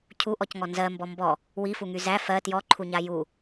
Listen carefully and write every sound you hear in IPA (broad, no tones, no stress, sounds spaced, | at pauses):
cʰ u ʔ ɔ c ŋ ɔ n z ɜ m b ɔ m b ɔ | w i f u ŋ y z æ f ɜ t j ɔ ǃʰ u ɲ a j u